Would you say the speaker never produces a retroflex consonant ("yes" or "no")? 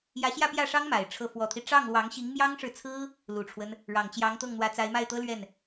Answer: no